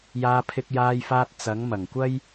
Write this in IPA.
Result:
j aː˧ pʰ ɪ˧ k̚ j aː˧ j f aː˧ t̚ t͡s ɐ˨˥ ŋ m ɐ˨˩ ŋ kʷ ɐ˥ j

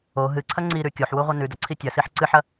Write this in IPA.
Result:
o ɦ ɨ ǀʰ ɐ ŋ͡ǀ i ɾ ʉ kʲ o ħ w u ʁʷ ɐ n ʉ d ɐ ǀʰ i tʲ ɐ s i ħ ǀ ɨ ħ ɐ

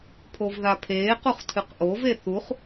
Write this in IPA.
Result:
pʰ o v ð a pʰ eː q u χ tʰ ɨ q ʔ o v e θ u χ

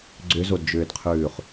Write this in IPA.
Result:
ɡ͡ǀ ʏ z o d d͡ʒ ʏː d qʰ ʉː χ

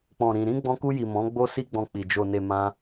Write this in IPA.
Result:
k͡p ɔ̃˨ ɾ ĩ˨ ɾ ĩ˧ ɡ͡b ɔ̃˧ k u˧ j i˨ m ɔ̃˨˦ ɡ͡b o˦ s i˦ ɡ͡b ɔ̃˧ k͡p i˨ d͡ʒ o˨ n e˨ m ã˧

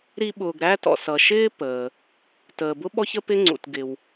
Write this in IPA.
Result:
ɾ i˦ ɓ ʊː˨ ɡ ɾ æ˥ t ɔ̰˩ s ʌ˨ ʃ ɪː˥ p əː˩ | t əː˨ b ʊ˥ ɓ ɔ˥ ç ə˥ p ɪ˥ ŋ͡ǀ ṵ˨ t ɡ ɪ˨ w

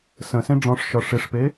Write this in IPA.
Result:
s ə̃ s ẽ ɖ͡ʐ ɔ̃ ʂ ʃ ɒ ʂ e ʂ p e

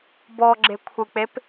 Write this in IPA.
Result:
b ɔ ɡ͡ǁ e kʷʰ ɨ k͡p e p

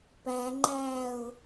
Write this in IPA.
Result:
p æ ŋ͡ǃ æː ʊ̯

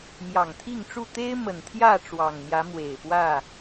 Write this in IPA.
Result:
m j ɑ˨˩ ŋ t̪ʰ i˥˨ ŋ ʈ͡ʂ u˥˨ t̪ e˦ ɪ̯ m ə˨˩ n t̪ʰ j ä˥˨ ʈ͡ʂ w ɑ˨˩ ŋ n̪ j ä˨˦ m w e˨˩ ɪ̯ p w ä˥˨

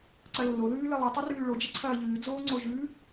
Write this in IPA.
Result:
ǀ ɐ lː o ð ʉː l ɨ lˠ i tˤ i r ʉː ɭ o d͡ʒ ɐ ǀʰ ɐː ʎ ɨː d͡z oː ŋ͡ǀ o ʒ ʉ

